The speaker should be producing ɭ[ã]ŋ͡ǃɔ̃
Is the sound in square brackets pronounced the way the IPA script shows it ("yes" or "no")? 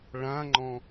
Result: yes